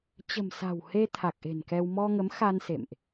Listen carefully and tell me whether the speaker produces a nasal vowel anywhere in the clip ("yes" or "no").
no